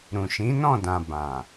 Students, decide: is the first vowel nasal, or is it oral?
nasal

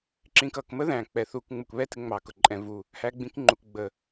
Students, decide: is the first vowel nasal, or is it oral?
nasal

